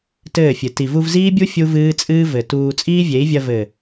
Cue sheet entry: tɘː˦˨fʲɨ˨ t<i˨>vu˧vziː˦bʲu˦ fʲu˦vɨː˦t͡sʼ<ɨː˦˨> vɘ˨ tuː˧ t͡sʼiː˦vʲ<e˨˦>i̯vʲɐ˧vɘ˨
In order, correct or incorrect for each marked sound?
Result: correct, incorrect: ɨː˦, correct

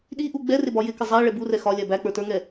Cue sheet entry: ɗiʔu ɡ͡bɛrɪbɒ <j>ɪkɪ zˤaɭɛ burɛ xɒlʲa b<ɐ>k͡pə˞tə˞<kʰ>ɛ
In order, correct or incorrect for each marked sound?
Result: correct, incorrect: æ, incorrect: ŋ

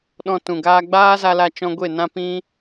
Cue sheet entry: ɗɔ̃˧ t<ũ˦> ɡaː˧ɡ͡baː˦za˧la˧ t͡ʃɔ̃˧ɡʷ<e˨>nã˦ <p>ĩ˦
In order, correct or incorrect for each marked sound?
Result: incorrect: ũ˨, incorrect: e˦˨, correct

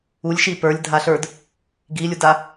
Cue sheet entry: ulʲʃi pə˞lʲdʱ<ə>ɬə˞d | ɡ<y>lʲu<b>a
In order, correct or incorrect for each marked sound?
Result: incorrect: a, incorrect: i, incorrect: d

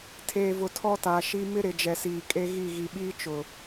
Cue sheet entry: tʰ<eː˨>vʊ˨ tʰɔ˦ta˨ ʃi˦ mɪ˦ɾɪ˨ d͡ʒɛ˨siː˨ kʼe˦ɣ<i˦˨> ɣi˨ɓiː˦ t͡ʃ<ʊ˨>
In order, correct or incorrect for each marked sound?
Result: correct, correct, correct

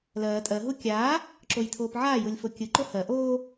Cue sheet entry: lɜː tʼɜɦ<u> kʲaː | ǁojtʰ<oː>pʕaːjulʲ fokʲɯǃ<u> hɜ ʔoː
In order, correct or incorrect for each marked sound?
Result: correct, correct, incorrect: o

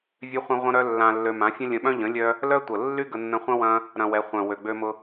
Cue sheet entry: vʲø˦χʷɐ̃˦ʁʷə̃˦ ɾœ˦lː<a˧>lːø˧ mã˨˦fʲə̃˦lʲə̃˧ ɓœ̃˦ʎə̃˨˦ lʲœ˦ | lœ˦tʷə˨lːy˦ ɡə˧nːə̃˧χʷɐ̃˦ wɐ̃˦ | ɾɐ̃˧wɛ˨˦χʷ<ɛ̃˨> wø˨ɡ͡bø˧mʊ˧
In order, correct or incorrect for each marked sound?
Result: incorrect: ã˧, incorrect: œ̃˨

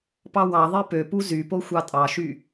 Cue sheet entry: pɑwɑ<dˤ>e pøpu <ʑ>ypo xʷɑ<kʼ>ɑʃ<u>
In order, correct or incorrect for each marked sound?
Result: incorrect: ðˤ, incorrect: z, incorrect: tʼ, incorrect: y

